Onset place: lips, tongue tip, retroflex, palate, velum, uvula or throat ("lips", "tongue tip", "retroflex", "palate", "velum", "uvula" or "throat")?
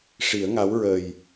retroflex